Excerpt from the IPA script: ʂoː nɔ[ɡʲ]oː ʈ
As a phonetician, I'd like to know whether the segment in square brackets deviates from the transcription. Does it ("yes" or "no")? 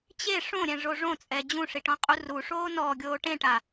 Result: no